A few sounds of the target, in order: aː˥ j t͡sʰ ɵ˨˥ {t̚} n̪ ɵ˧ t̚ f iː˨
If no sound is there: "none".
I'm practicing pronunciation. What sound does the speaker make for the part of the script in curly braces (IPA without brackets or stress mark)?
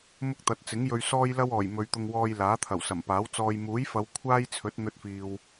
t̚